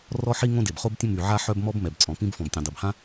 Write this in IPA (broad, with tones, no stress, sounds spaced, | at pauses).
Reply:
r ɔ˥ ħ i˥ ŋ õ˥ d e˩ b χ o˥ b tʲ ə̃˥ m y˩ ʕ a˥ ħ œ˥ b m ɔ˥ b m ɛ˩ b t͡sʼ ɔ̃˩ p ĩ˥ b f ɔ̃˩ b tʲ œ̃˩ dˤ i˩ b h ã˥